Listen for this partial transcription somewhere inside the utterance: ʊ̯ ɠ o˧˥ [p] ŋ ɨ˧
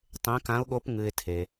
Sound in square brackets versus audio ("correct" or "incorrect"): correct